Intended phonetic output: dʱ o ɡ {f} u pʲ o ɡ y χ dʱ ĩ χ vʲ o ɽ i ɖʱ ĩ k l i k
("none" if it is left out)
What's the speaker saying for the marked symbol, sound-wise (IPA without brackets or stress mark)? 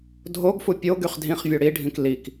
f